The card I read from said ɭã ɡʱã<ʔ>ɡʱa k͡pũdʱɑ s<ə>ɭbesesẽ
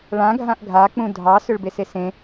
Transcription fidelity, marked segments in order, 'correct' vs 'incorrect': correct, incorrect: ʏ

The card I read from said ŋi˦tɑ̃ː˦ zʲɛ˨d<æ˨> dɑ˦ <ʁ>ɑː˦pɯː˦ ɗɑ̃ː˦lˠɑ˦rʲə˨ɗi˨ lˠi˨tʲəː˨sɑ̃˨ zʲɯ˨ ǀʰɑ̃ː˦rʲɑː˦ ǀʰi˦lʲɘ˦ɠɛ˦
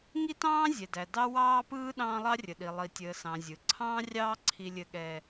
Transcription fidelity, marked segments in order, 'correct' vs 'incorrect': correct, incorrect: w

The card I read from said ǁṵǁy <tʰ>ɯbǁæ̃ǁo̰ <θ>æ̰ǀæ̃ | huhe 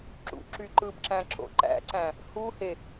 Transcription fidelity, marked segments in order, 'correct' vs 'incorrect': incorrect: ǃ, incorrect: ǃ

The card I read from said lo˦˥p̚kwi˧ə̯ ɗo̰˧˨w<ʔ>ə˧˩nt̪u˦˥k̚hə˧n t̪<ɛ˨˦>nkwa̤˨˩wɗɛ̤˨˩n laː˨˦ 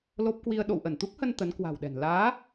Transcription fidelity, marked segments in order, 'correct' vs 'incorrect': correct, incorrect: ə˨˦

